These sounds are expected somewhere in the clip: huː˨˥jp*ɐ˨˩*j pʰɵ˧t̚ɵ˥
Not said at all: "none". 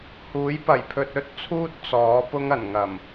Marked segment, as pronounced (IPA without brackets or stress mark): ɐ˨˩